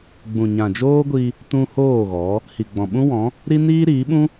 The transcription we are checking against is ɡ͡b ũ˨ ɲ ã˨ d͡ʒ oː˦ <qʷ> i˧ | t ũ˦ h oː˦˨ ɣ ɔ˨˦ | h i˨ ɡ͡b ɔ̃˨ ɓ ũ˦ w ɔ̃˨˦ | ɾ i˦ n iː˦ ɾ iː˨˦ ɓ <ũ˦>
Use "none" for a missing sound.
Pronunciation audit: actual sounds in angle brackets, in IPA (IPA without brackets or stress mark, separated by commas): ɡʷ, ũ˦